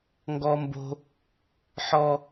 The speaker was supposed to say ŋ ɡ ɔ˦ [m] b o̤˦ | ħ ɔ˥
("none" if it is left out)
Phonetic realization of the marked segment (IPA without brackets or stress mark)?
m